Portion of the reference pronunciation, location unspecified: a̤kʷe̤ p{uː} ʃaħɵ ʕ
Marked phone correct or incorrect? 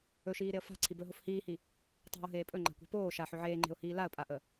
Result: incorrect